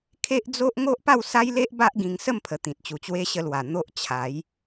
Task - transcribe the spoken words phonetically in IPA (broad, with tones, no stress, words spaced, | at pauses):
kʰe˦ʔd͡zo˦ʔ ŋo˦ʔpa˥˧wsa˦jle˦ʔ ba˦ʔɡĩ˧ŋ sə˥˧mpʰə˨˩ t̪ĩ˨t̚t͡ɕu˨˩t͡ɕwe˦ ɕə˧lwa˨˩ n̪o˦ʔt͡ɕʰa˨˦j